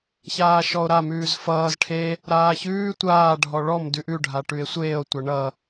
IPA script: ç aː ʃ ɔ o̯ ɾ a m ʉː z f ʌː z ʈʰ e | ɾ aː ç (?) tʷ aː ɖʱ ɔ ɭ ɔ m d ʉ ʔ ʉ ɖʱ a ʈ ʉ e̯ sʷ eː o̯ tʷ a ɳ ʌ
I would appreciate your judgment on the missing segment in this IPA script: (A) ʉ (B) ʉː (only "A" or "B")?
B